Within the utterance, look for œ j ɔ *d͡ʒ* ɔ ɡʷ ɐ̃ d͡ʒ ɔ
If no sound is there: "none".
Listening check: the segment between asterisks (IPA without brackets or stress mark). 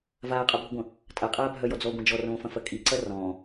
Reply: d͡z